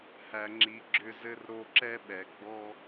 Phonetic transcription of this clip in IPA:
h æ˨ ŋ͡ǁ i˨ ɡ͡ǁ ʏ˧ z ɘ˧ r ɾ o˧ ǁ ɛ˦ ɓ ɛ˨ ɡ͡b ɔ˦

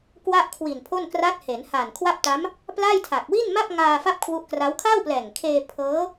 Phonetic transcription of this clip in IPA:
k w a˥˩ ʔ kʰ w i˨˩ n pʰ o˥˩ n k r a˦˥ t̚ h e˩˦ n h a˨˩ n kʰ w a˥˩ p̚ t a˦˥ m | p l a˥˩ j tʰ a˨˩ k̚ w i˥˩ n m a˥˩ p̚ ŋ aː˧ f a˥˩ p̚ kʰ w u˦˥ ʔ k r a˦˥ w kʰ a˥˩ w p l ɛː˨˩ ŋ kʰ eː˧ pʰ ɤː˦˥

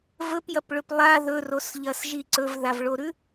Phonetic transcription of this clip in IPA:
v ɵ p j ɐ p ɭ ɵ p lˠ a ð ɵ r o s ʎ ɐ s ʒ i ǀ ɵ v ð a v ɭ o ɾ ʉ

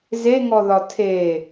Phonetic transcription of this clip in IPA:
z e ŋ ɔ ð ɒ tʰ e

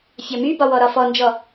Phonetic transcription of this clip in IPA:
fʲ ɒ m y b ɒ w ɔ ɾ ɒ f ɔ n d͡ʒ ɔ

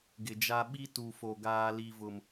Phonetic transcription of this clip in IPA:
ɡ ɪ˨ d͡ʒ a˦ ɓ i˦ t u˨ f o˨ ɡ aː˦ l i˦ v ʊ˦ m

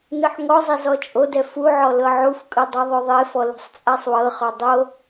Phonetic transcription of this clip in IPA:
n ɯ ħ ŋ ɔ zˤ i z ɔ t͡ʃʼ o d ɛ f u ʕ ɔ l ɤ ʕ u f kʼ ɯ dˤ ɤ ðˤ o ðˤ e f ɔ l ṳ sˤ t͡sʼ a sˤ w ɤ χ ɔ dˤ o

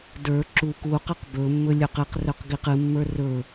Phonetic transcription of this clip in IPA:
d ə˞ ǁ u k u q ɯ q b ɵ mː ɵ lʲ ɵ q ɨ q r ɵ q ɡ i q ɨ mː ə˞ r ɵ

